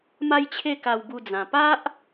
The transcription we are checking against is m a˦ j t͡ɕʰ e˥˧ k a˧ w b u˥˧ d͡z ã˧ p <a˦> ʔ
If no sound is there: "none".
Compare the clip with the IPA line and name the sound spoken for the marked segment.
a˦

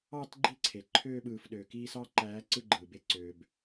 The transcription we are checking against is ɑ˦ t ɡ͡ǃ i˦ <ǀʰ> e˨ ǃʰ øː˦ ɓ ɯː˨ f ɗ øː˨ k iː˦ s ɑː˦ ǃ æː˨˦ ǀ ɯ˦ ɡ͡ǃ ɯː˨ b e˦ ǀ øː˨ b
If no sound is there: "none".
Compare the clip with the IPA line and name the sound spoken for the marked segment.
ǀʰ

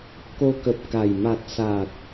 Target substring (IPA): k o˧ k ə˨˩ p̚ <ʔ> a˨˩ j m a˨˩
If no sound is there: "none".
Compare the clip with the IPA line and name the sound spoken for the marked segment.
k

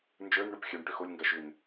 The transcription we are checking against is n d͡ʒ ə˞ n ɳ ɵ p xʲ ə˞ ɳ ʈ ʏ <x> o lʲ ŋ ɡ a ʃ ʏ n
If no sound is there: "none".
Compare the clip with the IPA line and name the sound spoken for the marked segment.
x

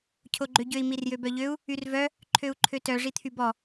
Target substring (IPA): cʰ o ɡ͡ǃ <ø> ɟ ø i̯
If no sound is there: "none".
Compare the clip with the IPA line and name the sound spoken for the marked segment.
ø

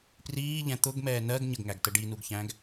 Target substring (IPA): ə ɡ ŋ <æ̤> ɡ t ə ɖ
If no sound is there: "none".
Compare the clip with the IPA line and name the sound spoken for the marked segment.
æ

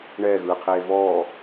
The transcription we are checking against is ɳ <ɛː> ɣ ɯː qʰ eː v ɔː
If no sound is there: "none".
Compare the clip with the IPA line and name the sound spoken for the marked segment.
ɛː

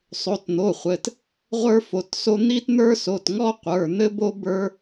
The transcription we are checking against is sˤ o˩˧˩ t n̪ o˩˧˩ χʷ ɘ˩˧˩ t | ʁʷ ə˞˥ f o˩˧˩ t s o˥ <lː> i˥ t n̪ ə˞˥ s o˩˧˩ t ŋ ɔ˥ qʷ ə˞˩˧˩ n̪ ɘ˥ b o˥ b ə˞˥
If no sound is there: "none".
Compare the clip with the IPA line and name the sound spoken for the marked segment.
n̪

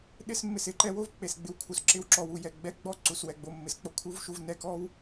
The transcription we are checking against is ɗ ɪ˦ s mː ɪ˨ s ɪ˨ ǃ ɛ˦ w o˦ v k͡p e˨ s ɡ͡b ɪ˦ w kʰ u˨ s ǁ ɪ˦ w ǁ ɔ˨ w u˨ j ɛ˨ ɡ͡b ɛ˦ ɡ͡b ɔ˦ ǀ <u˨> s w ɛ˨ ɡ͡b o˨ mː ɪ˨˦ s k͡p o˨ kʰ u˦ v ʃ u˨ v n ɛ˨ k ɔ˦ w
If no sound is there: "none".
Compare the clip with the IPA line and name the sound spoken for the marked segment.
u˨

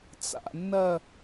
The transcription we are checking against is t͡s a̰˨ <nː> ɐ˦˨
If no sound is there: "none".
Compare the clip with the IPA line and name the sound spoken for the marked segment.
nː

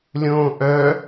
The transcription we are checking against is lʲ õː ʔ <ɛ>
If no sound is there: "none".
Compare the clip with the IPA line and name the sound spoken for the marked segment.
œ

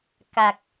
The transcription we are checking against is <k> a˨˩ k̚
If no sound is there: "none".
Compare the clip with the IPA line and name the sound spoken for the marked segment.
k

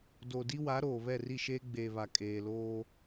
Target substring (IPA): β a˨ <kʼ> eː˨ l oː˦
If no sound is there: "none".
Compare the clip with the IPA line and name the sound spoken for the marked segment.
kʼ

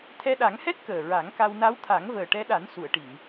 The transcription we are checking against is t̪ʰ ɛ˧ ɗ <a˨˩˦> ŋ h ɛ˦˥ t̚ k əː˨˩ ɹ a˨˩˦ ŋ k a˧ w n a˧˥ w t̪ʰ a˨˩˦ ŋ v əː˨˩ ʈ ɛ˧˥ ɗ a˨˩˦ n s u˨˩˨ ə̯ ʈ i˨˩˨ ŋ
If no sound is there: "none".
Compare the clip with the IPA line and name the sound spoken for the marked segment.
a˨˩˦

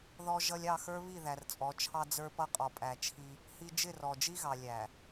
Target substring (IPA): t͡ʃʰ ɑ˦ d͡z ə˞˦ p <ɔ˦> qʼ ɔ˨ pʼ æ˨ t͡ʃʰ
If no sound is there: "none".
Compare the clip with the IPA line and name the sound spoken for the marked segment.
ʌ˦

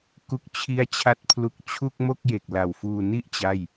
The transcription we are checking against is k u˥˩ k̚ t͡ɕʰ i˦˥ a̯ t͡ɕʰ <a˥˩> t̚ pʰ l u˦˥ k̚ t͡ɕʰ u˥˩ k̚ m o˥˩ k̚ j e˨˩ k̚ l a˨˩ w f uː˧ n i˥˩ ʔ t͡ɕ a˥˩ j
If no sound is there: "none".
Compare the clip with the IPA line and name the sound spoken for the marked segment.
a˥˩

